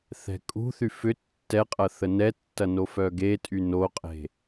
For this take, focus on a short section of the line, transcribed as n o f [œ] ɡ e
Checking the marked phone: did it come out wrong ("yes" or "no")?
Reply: no